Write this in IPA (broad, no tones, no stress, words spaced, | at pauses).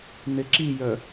neǁijœ